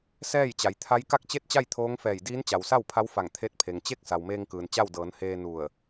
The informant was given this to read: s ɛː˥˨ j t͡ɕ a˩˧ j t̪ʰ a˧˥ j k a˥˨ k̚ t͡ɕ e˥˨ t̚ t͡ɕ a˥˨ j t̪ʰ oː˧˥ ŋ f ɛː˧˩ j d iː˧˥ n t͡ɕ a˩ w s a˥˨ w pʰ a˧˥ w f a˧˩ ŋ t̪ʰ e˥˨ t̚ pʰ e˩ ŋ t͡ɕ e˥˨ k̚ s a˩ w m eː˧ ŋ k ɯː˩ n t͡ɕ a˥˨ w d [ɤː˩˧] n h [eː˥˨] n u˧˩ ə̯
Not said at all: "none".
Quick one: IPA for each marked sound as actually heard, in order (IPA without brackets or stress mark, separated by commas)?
ɤː˩˧, eː˧